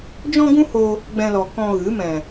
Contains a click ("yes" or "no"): no